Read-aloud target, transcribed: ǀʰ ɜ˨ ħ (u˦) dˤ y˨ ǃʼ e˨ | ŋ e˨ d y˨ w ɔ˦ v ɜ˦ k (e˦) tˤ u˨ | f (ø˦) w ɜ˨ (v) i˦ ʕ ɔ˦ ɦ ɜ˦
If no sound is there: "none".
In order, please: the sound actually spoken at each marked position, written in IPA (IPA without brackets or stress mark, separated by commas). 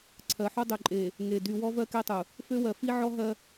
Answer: u˦, e˦, ø˦, f